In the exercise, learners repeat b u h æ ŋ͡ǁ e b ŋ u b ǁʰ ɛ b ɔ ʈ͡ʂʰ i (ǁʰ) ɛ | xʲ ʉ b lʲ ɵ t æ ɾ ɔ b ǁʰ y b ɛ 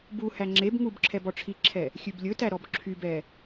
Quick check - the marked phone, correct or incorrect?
correct